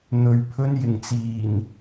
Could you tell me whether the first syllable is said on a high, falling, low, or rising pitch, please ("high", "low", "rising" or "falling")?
low